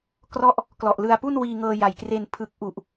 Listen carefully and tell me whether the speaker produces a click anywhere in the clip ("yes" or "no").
no